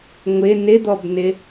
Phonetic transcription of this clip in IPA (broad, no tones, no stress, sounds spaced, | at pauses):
ŋʷ ɪ n ɪ d̪ ɔ b n ɪ